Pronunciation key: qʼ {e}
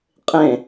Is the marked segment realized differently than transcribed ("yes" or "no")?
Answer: yes